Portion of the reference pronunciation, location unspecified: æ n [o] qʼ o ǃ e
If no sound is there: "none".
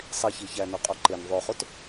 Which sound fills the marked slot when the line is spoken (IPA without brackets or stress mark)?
o